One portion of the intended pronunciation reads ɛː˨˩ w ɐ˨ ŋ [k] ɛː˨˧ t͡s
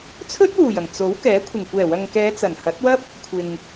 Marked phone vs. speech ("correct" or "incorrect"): correct